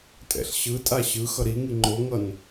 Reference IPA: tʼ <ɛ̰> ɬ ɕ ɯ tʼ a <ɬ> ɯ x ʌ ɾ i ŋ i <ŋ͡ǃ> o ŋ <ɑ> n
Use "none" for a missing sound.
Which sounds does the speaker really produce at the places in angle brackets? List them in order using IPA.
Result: ɛ̰, ɕ, ŋ͡ǃ, ʌ

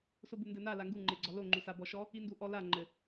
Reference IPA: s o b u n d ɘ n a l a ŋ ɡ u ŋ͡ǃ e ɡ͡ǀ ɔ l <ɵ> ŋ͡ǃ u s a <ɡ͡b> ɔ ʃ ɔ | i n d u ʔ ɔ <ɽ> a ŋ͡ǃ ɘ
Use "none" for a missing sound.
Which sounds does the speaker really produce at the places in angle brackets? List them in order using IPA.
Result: o, b, l

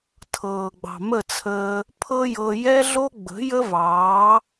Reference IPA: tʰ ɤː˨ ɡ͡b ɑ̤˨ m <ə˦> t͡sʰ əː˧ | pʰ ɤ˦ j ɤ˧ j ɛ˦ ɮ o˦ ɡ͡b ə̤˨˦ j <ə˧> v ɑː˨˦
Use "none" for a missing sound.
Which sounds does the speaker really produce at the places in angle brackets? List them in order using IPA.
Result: ə˦˨, ə˦

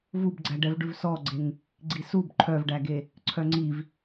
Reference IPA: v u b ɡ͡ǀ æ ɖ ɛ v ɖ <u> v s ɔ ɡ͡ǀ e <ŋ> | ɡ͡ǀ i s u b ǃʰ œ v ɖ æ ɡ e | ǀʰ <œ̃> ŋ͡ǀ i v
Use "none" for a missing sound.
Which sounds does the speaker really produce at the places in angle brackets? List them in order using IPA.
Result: ʉ, ŋ, œ

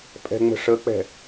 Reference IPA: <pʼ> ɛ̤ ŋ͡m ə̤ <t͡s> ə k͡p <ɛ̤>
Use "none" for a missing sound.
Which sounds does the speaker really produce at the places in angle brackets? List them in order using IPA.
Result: pʼ, ʂ, ɛ̤

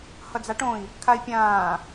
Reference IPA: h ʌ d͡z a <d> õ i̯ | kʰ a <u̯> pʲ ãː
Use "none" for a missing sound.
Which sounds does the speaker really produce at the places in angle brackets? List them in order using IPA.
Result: ʈ, i̯

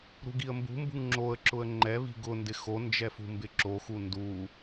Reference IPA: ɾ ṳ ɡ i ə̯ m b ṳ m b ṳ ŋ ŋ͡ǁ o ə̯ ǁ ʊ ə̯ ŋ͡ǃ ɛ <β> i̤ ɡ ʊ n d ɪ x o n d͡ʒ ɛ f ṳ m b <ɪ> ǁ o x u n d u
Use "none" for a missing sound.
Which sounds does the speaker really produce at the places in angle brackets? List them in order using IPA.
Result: β, ɪ

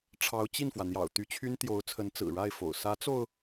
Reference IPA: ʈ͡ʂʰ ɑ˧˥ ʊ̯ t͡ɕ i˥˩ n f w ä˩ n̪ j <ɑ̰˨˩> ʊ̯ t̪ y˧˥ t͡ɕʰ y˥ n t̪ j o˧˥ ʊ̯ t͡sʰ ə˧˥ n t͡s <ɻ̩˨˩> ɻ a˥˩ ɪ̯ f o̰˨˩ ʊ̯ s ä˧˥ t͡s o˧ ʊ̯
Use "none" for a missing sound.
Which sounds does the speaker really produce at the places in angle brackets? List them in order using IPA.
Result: ɑ̰˨˩, ɹ̩˨˩

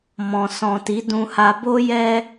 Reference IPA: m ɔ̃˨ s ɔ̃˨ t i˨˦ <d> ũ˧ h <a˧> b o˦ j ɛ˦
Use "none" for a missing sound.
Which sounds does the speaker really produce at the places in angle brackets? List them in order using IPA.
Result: d, a˧

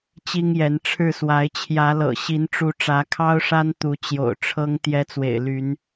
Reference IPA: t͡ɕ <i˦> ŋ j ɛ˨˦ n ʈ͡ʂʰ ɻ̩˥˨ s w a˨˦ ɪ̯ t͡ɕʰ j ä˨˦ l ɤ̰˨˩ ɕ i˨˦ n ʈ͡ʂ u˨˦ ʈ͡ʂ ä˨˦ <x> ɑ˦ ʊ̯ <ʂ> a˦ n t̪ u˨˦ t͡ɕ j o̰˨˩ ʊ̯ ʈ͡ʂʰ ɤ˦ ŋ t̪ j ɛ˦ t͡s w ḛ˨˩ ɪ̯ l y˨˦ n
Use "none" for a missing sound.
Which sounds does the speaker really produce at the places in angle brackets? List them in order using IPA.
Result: i˦, kʰ, ʂ

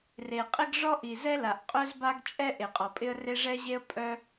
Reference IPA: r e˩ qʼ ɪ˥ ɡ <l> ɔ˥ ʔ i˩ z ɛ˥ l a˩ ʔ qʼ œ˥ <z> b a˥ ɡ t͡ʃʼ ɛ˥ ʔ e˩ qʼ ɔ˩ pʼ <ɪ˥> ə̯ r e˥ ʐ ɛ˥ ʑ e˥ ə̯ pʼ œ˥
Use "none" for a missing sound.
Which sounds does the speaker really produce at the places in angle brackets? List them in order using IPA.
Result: ʐ, z, ɪ˥

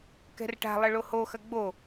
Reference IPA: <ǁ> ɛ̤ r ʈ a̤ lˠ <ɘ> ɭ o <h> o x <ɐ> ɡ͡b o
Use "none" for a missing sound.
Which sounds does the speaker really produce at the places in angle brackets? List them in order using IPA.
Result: k, ɘ, h, ɐ

